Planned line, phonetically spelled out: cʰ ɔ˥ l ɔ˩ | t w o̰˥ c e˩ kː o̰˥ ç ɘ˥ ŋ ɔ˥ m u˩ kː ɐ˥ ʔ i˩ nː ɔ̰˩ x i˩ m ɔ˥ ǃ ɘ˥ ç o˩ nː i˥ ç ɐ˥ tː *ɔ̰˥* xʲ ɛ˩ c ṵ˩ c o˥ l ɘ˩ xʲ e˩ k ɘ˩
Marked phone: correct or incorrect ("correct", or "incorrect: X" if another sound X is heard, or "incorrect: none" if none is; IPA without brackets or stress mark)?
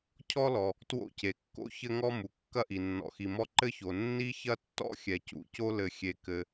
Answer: correct